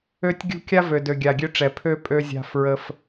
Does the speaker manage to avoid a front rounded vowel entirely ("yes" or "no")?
no